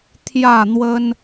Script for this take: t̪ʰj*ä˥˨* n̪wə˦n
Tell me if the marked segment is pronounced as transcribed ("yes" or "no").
yes